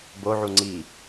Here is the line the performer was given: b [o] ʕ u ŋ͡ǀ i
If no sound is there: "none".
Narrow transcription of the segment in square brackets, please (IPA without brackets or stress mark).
o